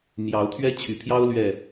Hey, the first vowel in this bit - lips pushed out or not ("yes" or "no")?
no